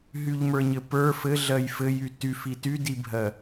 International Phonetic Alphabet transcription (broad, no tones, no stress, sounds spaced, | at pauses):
ɦ y ʎ m ə˞ ɲ ɘ p ə˞ f ɘ ɮ ɜ j f ɘ j y t y f i t y d i bʱ ɜ